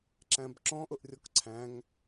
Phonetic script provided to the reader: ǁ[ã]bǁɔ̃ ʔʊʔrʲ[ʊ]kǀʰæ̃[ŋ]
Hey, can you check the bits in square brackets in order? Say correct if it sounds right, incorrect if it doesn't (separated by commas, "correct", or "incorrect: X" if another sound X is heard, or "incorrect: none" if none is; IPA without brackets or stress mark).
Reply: incorrect: æ̃, incorrect: ɔ, correct